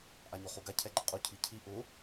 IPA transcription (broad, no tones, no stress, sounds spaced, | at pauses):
ʔ a ɲ o χ u ɡ a cʰ ɛ ɡ͡ǃ ɪ qʼ u cʰ i cʰ i ʔ ʊ